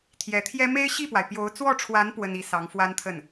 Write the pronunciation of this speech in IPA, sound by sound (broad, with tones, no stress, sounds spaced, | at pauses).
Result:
t̪ʰ j ɛ˧˥ t̪ʰ j ɛ˥ m e˥ ɪ̯ ɕ i˥˩ p w a˩ ɪ̯ p j o˧˥ ʊ̯ t͡s w ɔ˥˩ ʈ͡ʂʰ w a˧˥ n p w ə˥ n i˧˥ s ɑ˧˥ ŋ f w a˥ n t̪ʰ ə˥˩ n